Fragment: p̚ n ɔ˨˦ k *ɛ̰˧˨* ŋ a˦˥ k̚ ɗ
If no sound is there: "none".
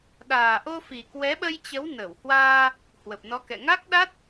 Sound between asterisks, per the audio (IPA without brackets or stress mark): ɛ̰˧˨